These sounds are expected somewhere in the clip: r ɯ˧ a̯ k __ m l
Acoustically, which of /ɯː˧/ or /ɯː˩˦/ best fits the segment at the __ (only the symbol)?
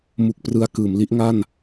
ɯː˩˦